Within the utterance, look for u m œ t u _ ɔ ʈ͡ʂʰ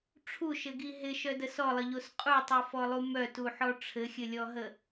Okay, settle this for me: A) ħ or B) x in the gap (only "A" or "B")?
A